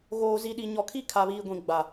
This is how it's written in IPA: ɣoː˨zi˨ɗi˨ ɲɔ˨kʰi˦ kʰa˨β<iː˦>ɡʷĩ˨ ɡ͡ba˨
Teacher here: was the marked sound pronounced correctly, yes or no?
no